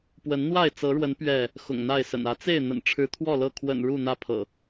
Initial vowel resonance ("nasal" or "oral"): oral